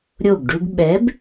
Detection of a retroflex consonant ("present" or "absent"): present